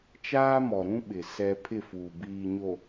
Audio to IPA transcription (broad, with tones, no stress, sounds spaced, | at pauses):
t͡ʃ aː˦ m ɔ˨ ɾ ũ˦ ɓ ɪ˨ s ɛ˦ pʰ ɪ˦˨ f uː˨ b iː˨ ɲ o˨